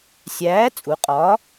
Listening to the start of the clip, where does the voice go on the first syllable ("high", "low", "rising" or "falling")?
rising